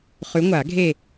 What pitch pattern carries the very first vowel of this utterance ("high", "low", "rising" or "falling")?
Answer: rising